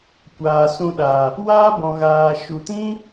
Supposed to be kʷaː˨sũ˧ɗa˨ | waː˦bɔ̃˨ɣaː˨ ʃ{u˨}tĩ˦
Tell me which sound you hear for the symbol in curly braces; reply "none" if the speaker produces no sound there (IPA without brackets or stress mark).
u˨